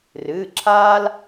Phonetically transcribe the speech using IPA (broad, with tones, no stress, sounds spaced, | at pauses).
r ɨː˩˧˩ ǁʰ aː˦ l